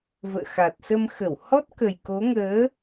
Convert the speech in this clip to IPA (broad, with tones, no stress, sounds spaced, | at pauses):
v ə̰ː˧˨ x a˨˩ t̚ s ə˧ m x ə˧˩ w h ɔ˦˥ t̚ k ə˨˩ j k o˨˦ ŋ əː˨˦